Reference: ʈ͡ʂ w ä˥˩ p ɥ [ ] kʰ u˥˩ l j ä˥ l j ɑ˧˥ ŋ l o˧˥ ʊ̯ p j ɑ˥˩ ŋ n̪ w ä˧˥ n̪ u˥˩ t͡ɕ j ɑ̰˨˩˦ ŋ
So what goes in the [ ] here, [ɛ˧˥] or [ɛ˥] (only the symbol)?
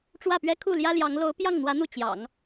ɛ˥